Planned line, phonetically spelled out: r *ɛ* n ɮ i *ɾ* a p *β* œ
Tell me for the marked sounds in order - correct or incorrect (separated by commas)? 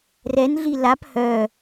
correct, incorrect, incorrect